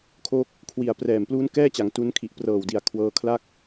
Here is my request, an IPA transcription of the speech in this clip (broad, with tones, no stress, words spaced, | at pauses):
kʰo˦˥k̚ | kʰwi˨˩a̯prɛː˨˩m pluː˦˥nkɛː˥˩t͡ɕa˩˦ŋ tu˦˥n kʰi˨˩ʔprɤː˨˩wdi˨˩a̯ kʰwɤː˧kʰla˥˩k̚